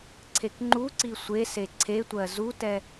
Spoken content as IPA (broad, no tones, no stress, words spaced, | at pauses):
ǀʰekŋ͡ǃuǀi sʷese ǀʰetʷɜ zutɛ